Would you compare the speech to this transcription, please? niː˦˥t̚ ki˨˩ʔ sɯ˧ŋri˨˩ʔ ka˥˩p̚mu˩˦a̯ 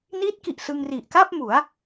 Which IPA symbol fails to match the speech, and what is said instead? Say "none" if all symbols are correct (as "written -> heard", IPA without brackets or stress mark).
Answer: none